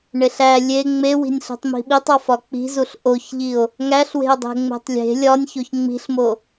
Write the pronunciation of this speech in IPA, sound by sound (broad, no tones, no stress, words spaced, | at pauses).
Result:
ɳeɬæ lʲe ŋ͡mewi̤nʲɬi̤tˤ mi̤ɓitˤɒ fɒk͡pi̤zuɬ ʔoçʎio̯ | ŋæɬwe̤o̯dˤe̤ ŋ͡me̤tˤlʲe̤ lʲɒnʲçoç ŋ͡mi̤ɬmo